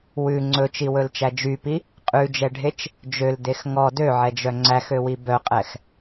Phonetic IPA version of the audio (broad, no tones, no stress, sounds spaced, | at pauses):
w ʉ ŋ͡ǀ ɵ t͡ʃ i w ɵ l t͡ʃ æ d͡ʒ y p i | qʼ ʉ d͡ʒ ɛ ɖʱ e t͡ʃ | d͡ʒ ø l d e x ŋ ɔ d ø ʕ ɛ d͡ʒ œ ŋ͡ǀ æ x ø w i b œ qʼ ɛ x